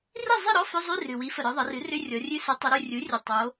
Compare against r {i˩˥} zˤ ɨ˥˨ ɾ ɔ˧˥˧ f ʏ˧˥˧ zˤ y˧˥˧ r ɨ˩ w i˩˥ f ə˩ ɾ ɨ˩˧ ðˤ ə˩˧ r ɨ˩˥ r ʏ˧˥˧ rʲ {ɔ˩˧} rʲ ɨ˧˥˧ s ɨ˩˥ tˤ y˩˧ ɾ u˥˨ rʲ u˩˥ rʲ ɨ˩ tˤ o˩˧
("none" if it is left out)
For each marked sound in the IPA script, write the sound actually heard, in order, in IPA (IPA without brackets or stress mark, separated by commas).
i˥˨, ɔ˩˧